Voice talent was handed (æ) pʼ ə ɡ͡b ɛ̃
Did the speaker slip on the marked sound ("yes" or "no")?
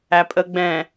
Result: no